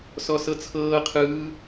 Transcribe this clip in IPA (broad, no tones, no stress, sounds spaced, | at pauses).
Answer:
s ɔ s ɤ t͡sʰ ɤː qʰ ɯː